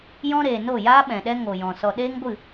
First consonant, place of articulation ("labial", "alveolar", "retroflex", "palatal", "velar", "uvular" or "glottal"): palatal